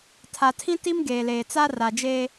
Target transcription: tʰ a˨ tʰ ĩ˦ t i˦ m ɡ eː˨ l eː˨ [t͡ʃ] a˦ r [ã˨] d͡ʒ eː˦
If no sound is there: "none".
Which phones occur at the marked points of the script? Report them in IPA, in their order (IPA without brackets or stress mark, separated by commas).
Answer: t͡s, a˨